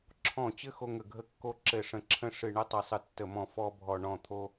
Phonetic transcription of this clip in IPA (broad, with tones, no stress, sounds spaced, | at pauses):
ǁʰ ɔ̃˧˩ t͡ɕ ɘ˦ x o˦ ŋ ə˧˩ ɡʱ ə˦ kː o˦ ǁ ɘ˧˩ ʂ ə̃˧˩ ǁʰ ə̃˦ ʂ ɨ˧˩ ɳ ə˦ tˤ ɨ˧˩ sˤ ɨ˧˩ tː ə˧˩ m ɔ̃˧˩ f ɔ˦ bʱ ɔ˧˩ ɳ ɔ̃˧˩ t̪ʰ o˦